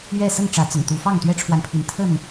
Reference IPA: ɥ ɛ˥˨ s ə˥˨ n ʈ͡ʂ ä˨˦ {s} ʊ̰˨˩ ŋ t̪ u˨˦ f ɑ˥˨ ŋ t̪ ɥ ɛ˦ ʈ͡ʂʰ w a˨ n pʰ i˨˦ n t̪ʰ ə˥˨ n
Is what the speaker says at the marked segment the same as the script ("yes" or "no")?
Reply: no